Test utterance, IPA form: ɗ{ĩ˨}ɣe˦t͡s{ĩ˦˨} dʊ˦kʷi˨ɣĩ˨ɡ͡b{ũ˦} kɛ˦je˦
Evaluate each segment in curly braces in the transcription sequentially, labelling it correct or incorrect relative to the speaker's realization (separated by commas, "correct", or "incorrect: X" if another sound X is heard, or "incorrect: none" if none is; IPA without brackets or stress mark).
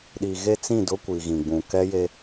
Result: incorrect: i˨, correct, incorrect: ũ˨